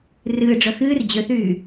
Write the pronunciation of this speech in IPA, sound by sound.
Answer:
r ɨː ɖ͡ʐ œ x ɨː r d͡ʑ ø θ yː

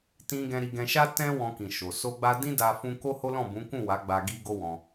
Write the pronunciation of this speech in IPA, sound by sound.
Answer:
t ĩ˧ ɡ ɛ̃˧ ɾ i˧ ɡ ɛ̃˧ ʃ a˦ t ɛ̃˦ w ɔ̃˧ k ĩ˨ ʃ o˨ s o˧ ɡ͡b a˧ d ĩ˦ d a˧ f ũ˧ k o˦ h o˦ l ɔ̃˦˨ b ũ˨˦ k ũ˦˨ w a˨˦ ɡ͡b a˧ ɡ i˦ ɡ o˦ w ɔ̃˧

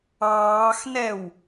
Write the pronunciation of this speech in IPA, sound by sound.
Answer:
ɑː x n ɛ w

